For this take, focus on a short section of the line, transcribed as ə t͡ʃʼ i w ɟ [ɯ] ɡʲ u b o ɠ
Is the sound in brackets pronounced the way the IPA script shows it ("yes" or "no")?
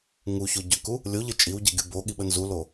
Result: yes